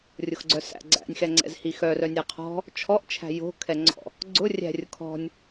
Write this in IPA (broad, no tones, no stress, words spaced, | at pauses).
rʲʊxɡ͡ǀœsæ̰ ɡ͡ǀæ̰nʲxɛŋ͡ǀɛ̰z hixœrœ nʲɛqʰɔ̤ | t͡ʃʰɔʔt͡ʃʰæ̤ jo̤kʰɛŋ͡ǀɔ̰ | ɡ͡ǀʊ rʲæ̤rʲʊ kʰɔ̤nʲ